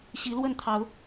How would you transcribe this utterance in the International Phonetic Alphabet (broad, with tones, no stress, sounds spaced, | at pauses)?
ɕ i˨˦ l w ə˥˨ n t̪ʰ ɑ˨˦ ʊ̯